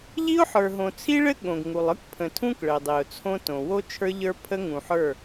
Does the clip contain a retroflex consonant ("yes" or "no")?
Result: yes